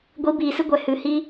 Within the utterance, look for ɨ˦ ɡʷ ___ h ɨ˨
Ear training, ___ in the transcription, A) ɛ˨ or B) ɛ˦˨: A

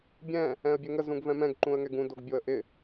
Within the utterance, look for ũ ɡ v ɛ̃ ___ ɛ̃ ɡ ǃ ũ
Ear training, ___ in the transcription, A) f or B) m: B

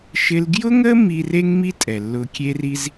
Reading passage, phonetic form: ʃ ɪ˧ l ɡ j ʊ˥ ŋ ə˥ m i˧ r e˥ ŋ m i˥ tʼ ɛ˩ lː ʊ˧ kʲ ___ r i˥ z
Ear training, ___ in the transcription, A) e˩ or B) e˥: B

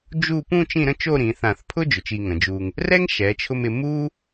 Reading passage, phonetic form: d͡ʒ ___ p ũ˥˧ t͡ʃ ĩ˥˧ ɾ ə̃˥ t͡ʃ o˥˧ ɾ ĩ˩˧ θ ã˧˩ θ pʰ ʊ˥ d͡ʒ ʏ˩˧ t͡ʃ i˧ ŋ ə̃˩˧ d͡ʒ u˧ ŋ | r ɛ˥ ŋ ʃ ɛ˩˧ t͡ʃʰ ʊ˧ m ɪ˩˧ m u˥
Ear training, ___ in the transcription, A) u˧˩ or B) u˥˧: B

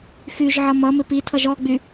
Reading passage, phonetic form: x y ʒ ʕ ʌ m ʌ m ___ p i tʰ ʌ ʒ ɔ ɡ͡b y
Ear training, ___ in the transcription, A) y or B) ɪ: B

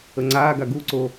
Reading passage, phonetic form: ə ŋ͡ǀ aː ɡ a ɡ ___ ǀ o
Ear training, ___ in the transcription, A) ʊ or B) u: B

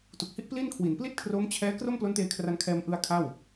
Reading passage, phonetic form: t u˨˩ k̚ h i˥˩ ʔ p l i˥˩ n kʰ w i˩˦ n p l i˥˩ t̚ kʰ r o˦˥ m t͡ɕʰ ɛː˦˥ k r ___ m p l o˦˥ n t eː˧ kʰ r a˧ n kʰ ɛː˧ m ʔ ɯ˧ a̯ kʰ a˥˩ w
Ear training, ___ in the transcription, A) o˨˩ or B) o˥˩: B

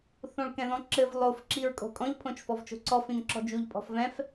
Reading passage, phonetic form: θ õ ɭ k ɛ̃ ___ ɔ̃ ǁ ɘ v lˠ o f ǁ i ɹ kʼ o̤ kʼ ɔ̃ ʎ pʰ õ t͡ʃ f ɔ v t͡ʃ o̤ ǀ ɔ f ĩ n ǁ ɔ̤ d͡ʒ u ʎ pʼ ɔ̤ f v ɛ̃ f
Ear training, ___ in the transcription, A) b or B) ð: B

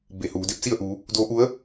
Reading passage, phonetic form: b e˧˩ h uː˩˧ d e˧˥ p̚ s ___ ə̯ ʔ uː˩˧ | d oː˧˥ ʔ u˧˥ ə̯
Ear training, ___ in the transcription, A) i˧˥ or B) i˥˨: B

